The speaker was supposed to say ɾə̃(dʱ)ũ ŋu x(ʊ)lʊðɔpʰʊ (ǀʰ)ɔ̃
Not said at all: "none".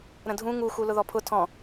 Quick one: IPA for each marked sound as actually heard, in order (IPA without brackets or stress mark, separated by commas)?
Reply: dʱ, u, tʰ